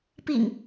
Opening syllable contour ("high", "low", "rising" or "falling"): low